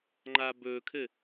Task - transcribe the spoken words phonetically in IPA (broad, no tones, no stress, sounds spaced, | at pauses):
ŋ͡ǃ a b ɵ kʰ ɘ